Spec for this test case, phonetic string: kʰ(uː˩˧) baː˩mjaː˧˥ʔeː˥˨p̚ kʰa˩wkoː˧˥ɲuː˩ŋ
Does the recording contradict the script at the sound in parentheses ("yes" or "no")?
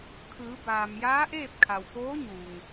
yes